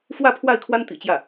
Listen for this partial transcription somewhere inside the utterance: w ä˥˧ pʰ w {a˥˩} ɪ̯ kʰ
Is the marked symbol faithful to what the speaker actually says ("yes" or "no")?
yes